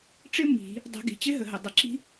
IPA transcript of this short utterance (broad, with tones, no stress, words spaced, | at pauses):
ʈ͡ʂɪ˦˥ mi̤˨˩˦ | dˤə̤˨˩˦ɡi̤˩ t͡ɕɪ˦˥ɦə˩ɦə˩ dˤʌ˩ǁi̤˦˥